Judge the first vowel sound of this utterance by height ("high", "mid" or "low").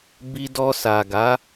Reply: high